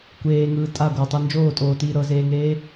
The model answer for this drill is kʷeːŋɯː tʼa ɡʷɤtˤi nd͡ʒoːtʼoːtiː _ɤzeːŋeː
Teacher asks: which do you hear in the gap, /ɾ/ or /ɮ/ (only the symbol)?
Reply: ɾ